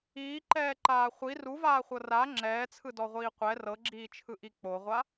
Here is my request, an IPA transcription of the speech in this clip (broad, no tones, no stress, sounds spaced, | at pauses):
iː ǃ ɛː ǃ aː χʷ i r u v aː χʷ ɤ r a ŋ͡ǁ ɛː t͡sʰ ɯ d ɔ ʁʷ iː qʷ ɛ r ɤ ɡ͡ǁ iː t͡ʃʰ ɯ ʔ i k͡p o ʁʷ a